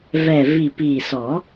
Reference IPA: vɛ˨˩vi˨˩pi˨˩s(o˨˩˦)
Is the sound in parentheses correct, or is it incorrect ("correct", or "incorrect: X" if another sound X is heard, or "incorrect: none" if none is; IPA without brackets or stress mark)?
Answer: incorrect: ɔ˨˩˦